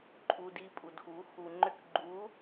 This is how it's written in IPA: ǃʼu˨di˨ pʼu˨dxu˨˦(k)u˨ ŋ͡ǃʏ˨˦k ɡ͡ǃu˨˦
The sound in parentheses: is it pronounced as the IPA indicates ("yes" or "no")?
no